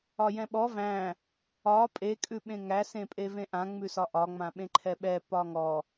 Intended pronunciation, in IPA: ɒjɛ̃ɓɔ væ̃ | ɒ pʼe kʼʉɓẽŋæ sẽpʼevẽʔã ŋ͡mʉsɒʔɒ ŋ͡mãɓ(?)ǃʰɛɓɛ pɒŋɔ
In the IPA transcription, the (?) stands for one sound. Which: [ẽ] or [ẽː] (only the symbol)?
ẽ